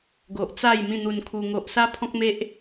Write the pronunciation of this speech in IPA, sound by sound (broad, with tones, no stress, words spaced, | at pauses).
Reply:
ɡo˨ʔt͡sa˥˧j mĩ˥˧n̪u˧nkʰu˧ ŋo˨ʔsa˦pʰɔ̃˦k̚me˦ʔ